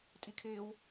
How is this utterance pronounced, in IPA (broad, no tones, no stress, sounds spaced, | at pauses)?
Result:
tʼ i kʰ ɪː w